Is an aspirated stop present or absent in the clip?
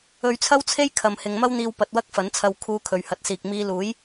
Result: present